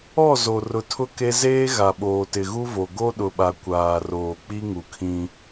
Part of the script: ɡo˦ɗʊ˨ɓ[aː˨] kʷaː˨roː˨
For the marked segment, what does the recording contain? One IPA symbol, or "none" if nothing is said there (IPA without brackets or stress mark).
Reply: a˨